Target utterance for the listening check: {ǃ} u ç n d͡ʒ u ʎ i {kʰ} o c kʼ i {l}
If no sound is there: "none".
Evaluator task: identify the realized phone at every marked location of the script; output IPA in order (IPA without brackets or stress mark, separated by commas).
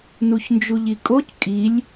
n, kʼ, lʲ